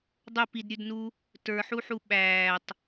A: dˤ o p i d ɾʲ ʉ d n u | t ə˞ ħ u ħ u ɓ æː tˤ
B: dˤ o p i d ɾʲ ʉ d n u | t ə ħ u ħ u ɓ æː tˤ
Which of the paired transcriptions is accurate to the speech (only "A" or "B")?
A